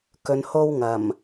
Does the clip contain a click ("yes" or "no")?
no